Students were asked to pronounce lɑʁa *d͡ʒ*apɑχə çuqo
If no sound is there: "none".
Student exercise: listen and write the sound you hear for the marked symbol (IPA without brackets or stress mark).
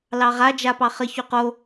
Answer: d͡ʒ